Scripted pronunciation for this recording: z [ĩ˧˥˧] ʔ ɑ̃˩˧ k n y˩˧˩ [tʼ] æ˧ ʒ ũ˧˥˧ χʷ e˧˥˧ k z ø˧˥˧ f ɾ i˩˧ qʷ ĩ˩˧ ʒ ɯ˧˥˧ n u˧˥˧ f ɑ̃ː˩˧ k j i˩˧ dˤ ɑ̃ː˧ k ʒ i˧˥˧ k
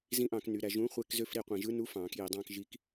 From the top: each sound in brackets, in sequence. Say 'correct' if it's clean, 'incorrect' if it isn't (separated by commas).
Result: incorrect, incorrect